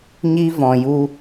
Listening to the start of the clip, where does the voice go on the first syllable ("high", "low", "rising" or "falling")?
high